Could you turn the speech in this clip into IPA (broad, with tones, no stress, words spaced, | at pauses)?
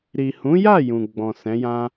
ɾi˨hũ˨˦ja˦˨ jũ˨ɡ͡bɔ̃˨sɛ̃˨˦jã˦